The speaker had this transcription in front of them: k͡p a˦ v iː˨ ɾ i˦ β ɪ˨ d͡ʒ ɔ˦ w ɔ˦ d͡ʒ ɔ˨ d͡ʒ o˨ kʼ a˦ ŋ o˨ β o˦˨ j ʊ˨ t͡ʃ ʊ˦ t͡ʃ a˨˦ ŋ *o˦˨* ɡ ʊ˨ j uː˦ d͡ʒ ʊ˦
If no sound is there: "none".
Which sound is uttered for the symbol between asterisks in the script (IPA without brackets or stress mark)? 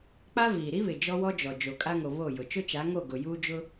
o˦˨